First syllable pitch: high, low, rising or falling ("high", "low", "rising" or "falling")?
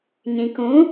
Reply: low